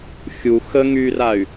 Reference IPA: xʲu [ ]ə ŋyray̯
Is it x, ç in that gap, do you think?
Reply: x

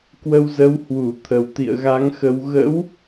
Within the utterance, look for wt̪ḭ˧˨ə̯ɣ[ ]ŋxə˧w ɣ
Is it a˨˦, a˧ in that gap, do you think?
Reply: a˨˦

